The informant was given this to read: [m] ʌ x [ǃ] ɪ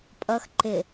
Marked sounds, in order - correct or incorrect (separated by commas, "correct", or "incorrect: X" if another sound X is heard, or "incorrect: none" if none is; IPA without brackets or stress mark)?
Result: incorrect: pʼ, correct